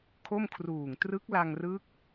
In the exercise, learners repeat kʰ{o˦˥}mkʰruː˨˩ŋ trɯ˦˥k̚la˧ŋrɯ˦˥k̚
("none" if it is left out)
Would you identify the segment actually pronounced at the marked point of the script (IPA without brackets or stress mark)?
o˥˩